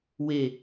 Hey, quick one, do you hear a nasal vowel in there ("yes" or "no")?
no